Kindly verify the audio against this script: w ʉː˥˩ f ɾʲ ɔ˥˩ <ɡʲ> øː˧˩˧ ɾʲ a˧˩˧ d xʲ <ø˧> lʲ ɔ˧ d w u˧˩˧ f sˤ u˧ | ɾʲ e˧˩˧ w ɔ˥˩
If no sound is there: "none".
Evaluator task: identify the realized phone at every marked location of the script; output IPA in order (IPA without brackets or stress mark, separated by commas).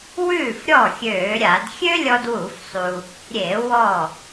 xʲ, ø˥